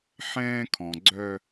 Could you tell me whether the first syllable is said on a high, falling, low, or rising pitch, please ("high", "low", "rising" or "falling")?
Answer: high